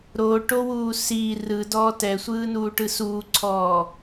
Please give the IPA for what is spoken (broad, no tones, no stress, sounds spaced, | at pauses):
ɾ o ʈ o w uː s i r ɯ d ɔː t ɛ sʷ ɯː n uː ʈ ɯ s uː ǀʰ ɔː